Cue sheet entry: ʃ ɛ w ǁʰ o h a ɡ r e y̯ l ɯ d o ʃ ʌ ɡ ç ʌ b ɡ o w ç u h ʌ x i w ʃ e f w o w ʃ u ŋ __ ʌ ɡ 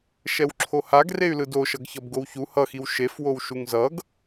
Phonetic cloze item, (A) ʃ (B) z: B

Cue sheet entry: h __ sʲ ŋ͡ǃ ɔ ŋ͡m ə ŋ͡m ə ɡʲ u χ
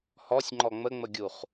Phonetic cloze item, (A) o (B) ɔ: B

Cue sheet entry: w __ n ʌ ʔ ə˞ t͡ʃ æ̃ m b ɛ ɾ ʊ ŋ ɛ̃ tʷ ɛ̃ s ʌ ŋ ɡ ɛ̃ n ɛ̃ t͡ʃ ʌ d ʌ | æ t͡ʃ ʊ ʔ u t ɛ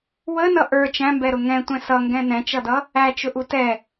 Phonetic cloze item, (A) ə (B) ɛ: A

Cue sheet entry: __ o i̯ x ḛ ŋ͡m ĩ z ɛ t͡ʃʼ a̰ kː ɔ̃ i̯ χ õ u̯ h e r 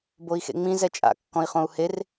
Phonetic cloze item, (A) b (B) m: A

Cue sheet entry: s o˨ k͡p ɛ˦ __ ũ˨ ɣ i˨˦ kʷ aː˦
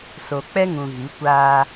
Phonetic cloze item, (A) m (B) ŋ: B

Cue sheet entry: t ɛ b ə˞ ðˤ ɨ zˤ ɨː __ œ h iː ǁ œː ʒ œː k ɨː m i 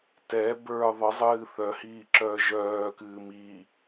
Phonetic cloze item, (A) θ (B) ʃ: A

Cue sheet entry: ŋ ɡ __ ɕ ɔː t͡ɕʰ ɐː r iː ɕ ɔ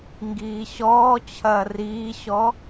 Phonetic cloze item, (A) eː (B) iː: B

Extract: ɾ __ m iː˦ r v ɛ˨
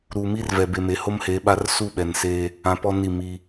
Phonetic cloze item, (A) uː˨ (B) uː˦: A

